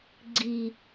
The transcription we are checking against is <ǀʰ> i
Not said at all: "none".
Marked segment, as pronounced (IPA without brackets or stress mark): ɡ͡ǀ